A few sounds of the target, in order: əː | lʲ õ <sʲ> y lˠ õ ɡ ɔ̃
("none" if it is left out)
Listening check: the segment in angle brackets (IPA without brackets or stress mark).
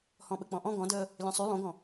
sˤ